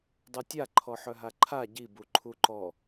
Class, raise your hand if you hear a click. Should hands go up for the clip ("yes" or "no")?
yes